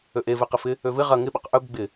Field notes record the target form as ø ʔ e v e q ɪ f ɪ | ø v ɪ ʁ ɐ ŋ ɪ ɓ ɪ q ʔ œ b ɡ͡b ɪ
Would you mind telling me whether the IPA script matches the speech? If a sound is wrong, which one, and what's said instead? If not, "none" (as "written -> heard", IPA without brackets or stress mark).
none